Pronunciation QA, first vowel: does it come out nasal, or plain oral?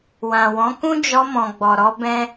nasal